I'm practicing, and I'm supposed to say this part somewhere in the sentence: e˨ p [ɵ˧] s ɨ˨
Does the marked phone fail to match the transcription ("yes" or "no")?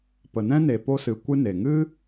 yes